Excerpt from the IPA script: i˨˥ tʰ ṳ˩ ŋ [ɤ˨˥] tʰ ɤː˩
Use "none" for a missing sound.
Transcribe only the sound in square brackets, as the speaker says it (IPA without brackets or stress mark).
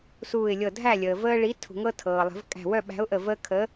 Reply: ɤ˦